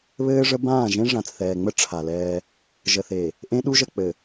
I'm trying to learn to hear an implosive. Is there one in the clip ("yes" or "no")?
yes